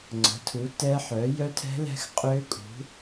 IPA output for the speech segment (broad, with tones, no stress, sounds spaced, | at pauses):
ŋ͡ǀ ə̤˩˥ tʰ u˩˥ t ɛ˦˥ ħ œ˩˥ j œ˦˥ tʰ ɛ̤˦˥ l ɛ̤˦˥ x qʼ ø˦˥ kʼ ṳ˩˥